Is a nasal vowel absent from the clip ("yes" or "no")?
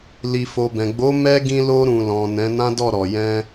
no